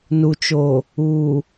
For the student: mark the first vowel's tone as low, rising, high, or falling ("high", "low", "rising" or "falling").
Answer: low